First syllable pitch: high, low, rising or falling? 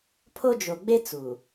high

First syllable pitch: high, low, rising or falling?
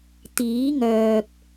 rising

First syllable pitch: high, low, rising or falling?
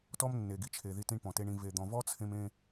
high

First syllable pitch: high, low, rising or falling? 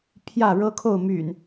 falling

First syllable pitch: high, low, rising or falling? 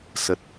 low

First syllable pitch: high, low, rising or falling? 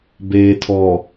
low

